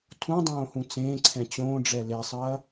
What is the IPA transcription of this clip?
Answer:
tʰ ũ dˤ õː h ũ t͡s ẽː ǀʰ ɛ̃ t͡ɕ õː ɖ͡ʐ ɛ l e sˤ ɐː

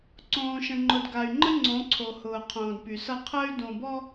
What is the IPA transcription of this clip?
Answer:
ǀ õː˨ ʃ ə̃˨ ŋ͡ǃ ʊ˨ d ɡ a˨ y̯ ŋ͡ǃ ə˦ ŋ͡ǀ õ˨˦ ǀʰ o˨ h ʊː˨ qʰ õː˨ d p y˨ s ʌ˦˨ qʰ əː˦ y̯ d õ˨ b ɔ˦

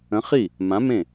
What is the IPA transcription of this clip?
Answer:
ə̃˨˥ χ i˥˩ | m ã˨˥ m ẽ˥˩

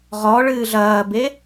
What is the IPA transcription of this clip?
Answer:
ʁ ɔ ɭ ɨː ɮ ɐː b e

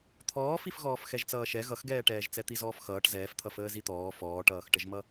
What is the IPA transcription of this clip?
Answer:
t̪ʰ ɔː f i f ɣ ɔː f x ɛ ʒ t͡s ʌː ʃ ɛ ɣ ʌ x ɡ ɛː ʈ ɛː ʒ t͡s ɛ t̪ i z ɔː f x ʌː ʈ z ɛː f t̪ʰ ʌ f əː z i t̪ ɔː f ɔː ʈ ʌː x ʈ ə ʒ m ʌ

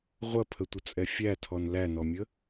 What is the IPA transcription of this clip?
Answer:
ʁʷ ɐ pʰ ə tʷ ə t͡sʼ ɛ fʲ æ tʰ ɔ n l æ n ɔ mʲ ə

